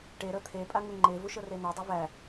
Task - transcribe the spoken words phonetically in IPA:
ʈ e ɾ ɤ t̪ʰ e pʼ a ŋ u ŋ͡ǃ e v u ʃ ɤ r e n ɤ dˤ u v æ

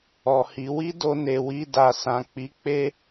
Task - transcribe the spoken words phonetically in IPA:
ɔ˨ h i˨˦ w i˦ d o˧ n e˨ w i˧ d a˨ s ã˨ k͡p i˨˦ k͡p e˦

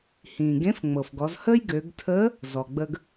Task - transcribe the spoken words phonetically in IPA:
h ĩː˩ ɡ ẽ˧˥ f ŋ͡m ɤ˩ f ɡ ɔ˩˧ z h əː˥ j ɡ ø˩˧ ɡ tʰ əː˧˥ | z ɔ˩ ɡ͡b ə˧ ɡ

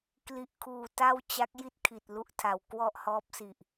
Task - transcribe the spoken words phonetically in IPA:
k l i˨˩ ʔ kʰ uː˨˩ t a˥˩ w t͡ɕ a˦˥ k̚ j i˥˩ t̚ kʰ i˨˩ t̚ l u˦˥ ʔ tʰ a˨˩ w k w ɔ˥˩ ʔ h ɔː˦˥ p̚ s i˨˩ ʔ

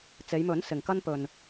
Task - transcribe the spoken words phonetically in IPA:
t͡s e˨˧ j m ɵ˨˥ n s ɪ˨ ŋ k ɐ˥ n p ɵ˧ n

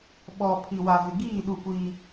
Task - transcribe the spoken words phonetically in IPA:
ɓ ɔ˨ pʰ i˨ w a˨ v ɪ˨ ɡ iː˦˨ ɗ u˦˨ kʷ iː˦

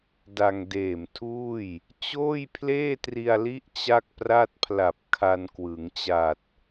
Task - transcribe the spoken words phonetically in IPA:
d a˧ ŋ d eː˨˩ m tʰ uː˥˩ j | t͡ɕ oː˥˩ j pʰ l eː˥˩ t r i˧ a̯ l i˦˥ ʔ t͡ɕ a˥˩ k̚ p r a˥˩ t̚ pʰ l a˨˩ p̚ kʰ a˧ n k w ɯ˩˦ ŋ t͡ɕ a˨˩ t̚

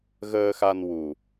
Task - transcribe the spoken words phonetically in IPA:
ɣ əː˧ x a˧ n w u˨˩

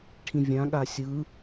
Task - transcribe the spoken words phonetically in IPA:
ʈʰ ĩ vʲ ã ɠ a sʲ ɯ

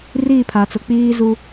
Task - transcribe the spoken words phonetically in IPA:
r iː˦˨ pʰ a˨ t͡s ʊ˨ k͡p iː˦ z u˦

